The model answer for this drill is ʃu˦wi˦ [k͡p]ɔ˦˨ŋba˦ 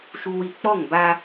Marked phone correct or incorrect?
correct